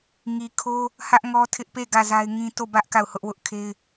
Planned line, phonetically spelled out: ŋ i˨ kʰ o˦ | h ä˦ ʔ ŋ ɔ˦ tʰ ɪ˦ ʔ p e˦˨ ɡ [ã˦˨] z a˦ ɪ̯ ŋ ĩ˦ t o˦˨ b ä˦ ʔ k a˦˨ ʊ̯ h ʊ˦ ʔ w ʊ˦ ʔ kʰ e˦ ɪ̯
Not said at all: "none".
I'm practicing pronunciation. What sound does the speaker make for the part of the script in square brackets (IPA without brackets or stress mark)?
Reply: ä˦˨